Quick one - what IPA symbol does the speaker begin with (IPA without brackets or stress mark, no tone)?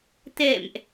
t̪